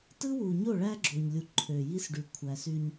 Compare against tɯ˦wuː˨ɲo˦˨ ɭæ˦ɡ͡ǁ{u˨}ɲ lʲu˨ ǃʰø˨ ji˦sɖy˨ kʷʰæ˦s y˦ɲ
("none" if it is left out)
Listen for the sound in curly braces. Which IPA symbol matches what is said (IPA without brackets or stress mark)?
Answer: o˨